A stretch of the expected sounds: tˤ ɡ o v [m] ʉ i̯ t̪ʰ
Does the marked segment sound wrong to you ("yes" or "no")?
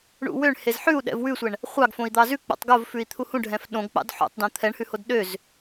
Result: yes